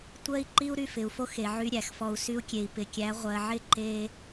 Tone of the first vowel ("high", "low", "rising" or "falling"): high